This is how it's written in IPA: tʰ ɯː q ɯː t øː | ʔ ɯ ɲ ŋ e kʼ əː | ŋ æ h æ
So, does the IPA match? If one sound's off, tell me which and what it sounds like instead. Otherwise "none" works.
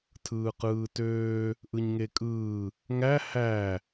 əː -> ɯː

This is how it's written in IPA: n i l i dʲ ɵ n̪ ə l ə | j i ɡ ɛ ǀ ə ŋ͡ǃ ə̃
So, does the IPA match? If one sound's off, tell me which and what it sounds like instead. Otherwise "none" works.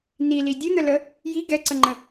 none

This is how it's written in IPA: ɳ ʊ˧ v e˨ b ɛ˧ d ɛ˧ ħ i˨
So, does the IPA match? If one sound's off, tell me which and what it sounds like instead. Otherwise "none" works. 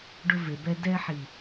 ɳ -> ɖ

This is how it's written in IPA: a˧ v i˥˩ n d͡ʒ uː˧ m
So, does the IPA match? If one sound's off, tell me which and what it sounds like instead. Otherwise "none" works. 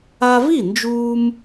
none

